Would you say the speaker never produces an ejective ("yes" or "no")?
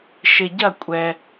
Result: no